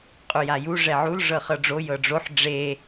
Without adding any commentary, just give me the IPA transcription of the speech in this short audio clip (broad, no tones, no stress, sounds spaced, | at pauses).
qʼ u j a j u ʐ ɛ ʕ u l ʐ ɤ χ ɤ ɖ͡ʐ o j ɤ ɖ͡ʐ o ħ ɖ͡ʐ e